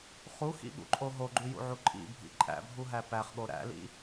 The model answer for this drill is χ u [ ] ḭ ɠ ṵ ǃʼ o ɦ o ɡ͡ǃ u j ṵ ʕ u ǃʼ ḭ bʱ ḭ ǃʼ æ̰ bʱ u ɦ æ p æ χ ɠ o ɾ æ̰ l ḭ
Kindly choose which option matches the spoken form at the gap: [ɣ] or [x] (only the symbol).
x